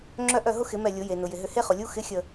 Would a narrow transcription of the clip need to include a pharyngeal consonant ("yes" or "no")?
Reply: no